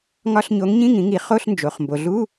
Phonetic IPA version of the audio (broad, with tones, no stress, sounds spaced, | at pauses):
ŋ ɒ˧˥˧ ɬ ɲ o˨˥ ŋ ɲ ĩ˧˥˧ ŋ ĩ˨˥ ŋ i˨˥ χ o˧˥˧ ɬ n d͡ʒ o˩˧ χ m b o˩˧ ɮ u˧˥˧